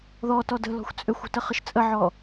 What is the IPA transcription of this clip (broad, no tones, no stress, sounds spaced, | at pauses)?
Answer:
ð ɔ t ɔ d ə̤ l ɔ̤ xʷ t͡sʼ ø xʷ o̤ t ə χ ə ʃ t͡sʼ ə ʕ ɔ